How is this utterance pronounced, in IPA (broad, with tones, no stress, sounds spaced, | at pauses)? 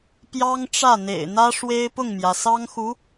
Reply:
p j ɑ˥ ŋ ʈ͡ʂ ä˥˩ n̪ ḛ˨˩ ɪ̯ n̪ ä˥ ʂ w e˥ ɪ̯ p ʊ˥˩ ŋ m j ä˩ s ɑ˥ ŋ x u˧˥